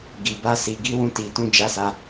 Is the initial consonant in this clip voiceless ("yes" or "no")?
no